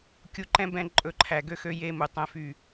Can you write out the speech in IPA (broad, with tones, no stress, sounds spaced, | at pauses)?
kʲ u˨˦ ǃ ɛ̃˦ b ɛ̃˦˨ ǃʼ ɵ˦˨ ǃʰ æ˨ ɡ ø˦ x ø˦ j e˦ m u˨ tˤ ɛ̃˦ f y˦˨